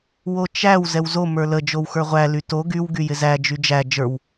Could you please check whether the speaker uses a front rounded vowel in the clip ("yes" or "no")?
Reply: yes